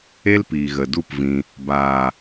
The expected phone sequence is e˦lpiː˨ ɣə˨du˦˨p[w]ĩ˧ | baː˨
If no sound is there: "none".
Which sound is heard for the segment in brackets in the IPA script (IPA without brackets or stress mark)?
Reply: v